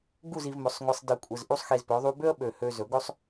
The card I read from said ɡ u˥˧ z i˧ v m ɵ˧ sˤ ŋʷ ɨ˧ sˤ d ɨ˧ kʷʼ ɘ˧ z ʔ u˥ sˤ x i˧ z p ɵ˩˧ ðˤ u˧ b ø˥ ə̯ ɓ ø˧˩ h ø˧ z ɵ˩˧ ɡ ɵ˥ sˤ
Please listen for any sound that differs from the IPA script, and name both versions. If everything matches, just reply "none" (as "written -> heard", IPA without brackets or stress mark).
none